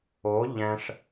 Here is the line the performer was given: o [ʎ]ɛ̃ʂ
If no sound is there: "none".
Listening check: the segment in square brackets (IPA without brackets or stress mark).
ʎ